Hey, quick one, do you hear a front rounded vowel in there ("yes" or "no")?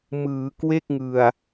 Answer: no